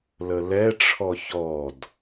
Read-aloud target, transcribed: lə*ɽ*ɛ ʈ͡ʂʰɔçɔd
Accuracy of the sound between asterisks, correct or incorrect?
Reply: incorrect